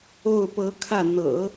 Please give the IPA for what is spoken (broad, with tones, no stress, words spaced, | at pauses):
o˥˩ʊ̯pɤ˧˥kʰä˥˩ n̪ɤ̰˨˩˦